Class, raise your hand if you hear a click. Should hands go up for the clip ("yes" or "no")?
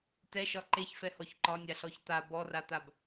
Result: yes